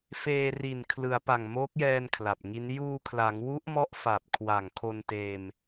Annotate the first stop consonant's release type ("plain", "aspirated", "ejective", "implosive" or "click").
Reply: aspirated